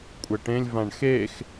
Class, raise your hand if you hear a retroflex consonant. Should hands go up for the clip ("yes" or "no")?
yes